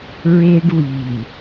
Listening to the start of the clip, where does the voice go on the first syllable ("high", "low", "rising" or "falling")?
high